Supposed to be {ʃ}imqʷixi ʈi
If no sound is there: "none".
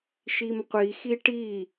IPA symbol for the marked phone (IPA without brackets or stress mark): ʃ